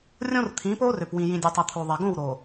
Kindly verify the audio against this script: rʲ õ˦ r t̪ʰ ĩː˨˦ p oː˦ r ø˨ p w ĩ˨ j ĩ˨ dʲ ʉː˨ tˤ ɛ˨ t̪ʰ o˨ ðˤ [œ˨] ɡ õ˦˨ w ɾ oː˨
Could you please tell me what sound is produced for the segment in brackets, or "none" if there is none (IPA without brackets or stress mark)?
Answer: ɛ˨